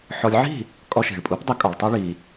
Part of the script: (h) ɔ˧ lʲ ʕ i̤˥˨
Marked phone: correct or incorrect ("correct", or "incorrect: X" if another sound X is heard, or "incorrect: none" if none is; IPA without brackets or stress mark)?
incorrect: ħ